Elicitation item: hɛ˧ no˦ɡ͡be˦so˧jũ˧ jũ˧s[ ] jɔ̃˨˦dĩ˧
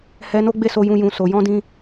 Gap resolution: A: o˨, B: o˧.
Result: A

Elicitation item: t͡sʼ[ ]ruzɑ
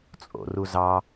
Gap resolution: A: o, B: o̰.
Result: B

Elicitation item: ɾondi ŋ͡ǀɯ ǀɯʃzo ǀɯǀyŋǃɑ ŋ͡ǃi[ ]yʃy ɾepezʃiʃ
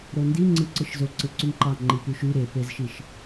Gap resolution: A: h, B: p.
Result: B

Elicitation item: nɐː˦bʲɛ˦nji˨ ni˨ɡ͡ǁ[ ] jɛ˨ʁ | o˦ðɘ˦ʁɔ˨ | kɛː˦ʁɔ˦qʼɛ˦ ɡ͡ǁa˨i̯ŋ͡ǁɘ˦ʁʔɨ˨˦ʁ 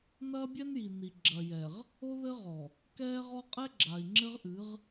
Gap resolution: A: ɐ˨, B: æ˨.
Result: A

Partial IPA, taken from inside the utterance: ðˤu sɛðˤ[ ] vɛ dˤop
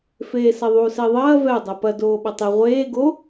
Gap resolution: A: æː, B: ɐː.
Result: B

